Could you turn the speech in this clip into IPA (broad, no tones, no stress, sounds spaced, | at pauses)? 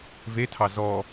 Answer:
v e tʰ ɑ z ɔ